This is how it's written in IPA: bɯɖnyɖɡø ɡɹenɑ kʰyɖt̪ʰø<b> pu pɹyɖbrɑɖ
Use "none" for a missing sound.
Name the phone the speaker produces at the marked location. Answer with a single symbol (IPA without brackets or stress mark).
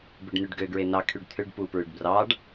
ɖ